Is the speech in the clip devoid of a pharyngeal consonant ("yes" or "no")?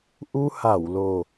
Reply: yes